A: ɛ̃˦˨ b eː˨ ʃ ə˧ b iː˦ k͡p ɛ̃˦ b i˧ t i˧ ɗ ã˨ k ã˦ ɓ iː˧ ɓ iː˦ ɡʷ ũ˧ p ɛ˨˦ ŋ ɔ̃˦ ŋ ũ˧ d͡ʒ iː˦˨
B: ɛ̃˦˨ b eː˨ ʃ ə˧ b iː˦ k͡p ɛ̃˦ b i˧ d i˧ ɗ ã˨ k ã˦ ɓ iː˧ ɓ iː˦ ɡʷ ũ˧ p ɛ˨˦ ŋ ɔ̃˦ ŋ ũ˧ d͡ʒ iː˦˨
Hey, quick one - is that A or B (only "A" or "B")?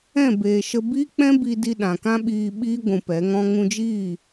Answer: B